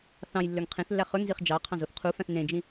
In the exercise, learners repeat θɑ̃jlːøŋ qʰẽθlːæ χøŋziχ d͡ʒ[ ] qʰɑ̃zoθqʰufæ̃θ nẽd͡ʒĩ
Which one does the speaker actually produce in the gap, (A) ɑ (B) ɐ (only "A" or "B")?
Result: A